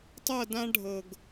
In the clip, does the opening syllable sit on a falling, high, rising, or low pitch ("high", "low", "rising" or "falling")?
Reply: falling